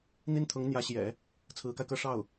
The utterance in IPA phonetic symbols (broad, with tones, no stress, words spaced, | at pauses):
n̪i˥nt̪ʰʊ˧˥ŋ n̪jä˧˥ɕjɛ̰˨˩˦ | t͡sʰɹ̩˧˥ka˧ɪ̯kɤ˥ ʂɑ˥˩ʊ̯